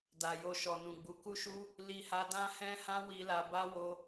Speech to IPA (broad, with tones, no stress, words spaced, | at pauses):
da˨jo˧ʃɔ˨ nũ˨ɡ͡bu˨˦ ku˦ʃu˦ | li˧ha˧ dã˦hɛ̃˦hã˦ wi˧la˧ba˦ wo˧